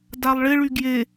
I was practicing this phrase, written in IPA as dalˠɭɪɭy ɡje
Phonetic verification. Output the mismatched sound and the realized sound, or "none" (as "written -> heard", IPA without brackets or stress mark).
none